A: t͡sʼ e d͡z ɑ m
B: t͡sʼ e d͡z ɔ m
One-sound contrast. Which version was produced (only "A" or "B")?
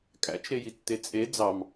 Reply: A